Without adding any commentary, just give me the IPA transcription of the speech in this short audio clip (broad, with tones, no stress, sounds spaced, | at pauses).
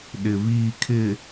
ɗ ɪ˨ β iː˨ kʰ ɪ˨